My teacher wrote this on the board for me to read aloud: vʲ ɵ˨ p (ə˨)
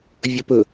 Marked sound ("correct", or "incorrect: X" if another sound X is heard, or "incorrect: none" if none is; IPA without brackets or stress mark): incorrect: ɵ˨